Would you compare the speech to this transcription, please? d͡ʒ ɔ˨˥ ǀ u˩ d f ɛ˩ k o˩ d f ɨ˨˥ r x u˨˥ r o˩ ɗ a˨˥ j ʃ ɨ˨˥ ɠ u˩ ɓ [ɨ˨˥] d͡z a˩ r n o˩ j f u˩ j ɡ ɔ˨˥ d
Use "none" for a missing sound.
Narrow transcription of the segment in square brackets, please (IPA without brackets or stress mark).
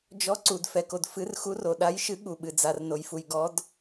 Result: ɨ˩